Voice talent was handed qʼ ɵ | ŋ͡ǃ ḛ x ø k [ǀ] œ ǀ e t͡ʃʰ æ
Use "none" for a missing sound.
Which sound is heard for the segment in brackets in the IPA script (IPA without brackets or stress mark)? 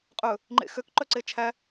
ǃ